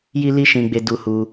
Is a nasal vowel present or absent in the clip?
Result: present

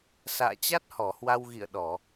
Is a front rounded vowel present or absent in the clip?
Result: absent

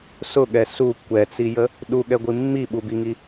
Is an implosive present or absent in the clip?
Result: present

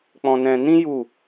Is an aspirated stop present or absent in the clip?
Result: absent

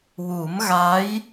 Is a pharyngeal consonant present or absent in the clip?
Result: absent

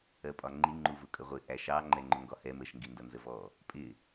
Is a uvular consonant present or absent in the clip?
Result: present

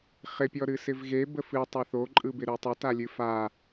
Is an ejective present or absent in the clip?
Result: present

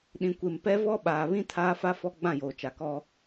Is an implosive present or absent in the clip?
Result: present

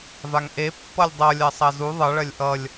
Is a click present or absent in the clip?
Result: absent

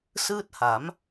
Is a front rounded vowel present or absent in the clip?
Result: absent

